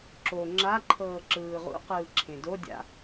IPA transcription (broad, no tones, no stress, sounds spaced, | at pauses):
ǁ o ŋ͡ǁ a ǃʰ ɤː ǁ ɯː ʁ ṵ q ɯː ǁʰ ẽ d o dʲ a̰